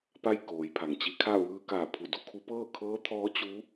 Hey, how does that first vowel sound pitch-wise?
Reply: falling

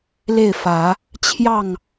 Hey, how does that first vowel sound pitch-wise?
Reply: falling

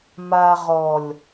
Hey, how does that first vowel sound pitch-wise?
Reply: low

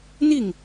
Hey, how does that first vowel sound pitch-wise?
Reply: falling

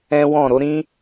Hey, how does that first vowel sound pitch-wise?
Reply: high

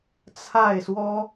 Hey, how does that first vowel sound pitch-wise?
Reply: falling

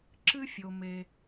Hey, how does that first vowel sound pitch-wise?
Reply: high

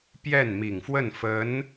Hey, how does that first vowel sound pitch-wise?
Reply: falling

